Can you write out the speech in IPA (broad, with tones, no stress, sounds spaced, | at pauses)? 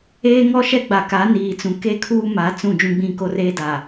eː˦ ŋ ɔ˦ ʃ ɛ˦ ɡ͡b a˨ k a˨˦ n iː˨ t͡s ũ˨ k e˦˨ kʰ uː˦ m a˨˦ t͡s ũ˦˨ d͡ʒ ũ˦ ɡ͡b ĩ˦ k o˦ r eː˦ d aː˨